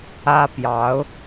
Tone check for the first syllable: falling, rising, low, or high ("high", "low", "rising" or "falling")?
high